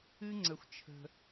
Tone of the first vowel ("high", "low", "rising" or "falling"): high